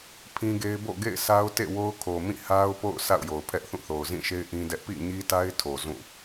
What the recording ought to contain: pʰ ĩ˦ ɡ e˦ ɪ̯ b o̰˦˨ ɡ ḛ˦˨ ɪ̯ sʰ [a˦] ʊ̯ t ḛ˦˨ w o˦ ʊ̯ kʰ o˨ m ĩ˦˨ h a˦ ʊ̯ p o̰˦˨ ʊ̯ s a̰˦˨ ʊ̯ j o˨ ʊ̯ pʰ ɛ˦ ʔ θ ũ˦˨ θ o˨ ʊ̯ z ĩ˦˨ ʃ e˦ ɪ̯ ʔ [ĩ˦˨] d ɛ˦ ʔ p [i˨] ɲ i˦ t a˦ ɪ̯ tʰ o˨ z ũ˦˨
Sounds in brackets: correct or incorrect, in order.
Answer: correct, incorrect: ĩ˦, incorrect: ḭ˦˨

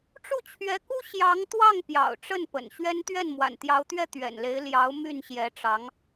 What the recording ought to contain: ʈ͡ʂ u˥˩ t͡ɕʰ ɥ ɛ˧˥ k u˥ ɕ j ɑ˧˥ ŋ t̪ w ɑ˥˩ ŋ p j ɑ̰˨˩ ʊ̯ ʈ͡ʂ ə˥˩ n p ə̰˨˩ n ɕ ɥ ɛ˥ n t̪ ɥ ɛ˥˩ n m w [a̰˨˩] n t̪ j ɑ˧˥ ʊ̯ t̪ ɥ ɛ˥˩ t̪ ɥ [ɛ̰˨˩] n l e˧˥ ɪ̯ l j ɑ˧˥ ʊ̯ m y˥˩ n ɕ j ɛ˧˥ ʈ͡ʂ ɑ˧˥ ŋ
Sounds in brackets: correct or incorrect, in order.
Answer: correct, correct

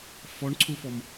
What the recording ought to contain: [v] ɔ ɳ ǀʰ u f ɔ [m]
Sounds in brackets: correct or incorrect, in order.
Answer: incorrect: f, correct

